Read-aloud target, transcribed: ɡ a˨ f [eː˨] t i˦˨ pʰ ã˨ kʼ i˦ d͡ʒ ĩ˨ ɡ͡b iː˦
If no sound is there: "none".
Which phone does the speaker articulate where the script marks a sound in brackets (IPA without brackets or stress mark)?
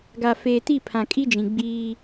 eː˨